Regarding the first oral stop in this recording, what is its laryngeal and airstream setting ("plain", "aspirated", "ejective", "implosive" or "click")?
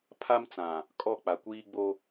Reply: aspirated